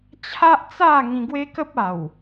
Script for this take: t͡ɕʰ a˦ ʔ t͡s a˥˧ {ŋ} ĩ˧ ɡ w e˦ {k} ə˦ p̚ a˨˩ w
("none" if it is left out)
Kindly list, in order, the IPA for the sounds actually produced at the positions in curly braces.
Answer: ŋ, k

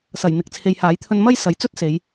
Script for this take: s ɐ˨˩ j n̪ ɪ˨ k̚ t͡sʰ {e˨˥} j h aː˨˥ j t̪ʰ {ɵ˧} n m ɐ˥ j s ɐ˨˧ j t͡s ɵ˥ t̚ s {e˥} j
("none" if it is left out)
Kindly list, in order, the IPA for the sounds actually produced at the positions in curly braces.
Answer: e˨, ɵ˧, e˨˧

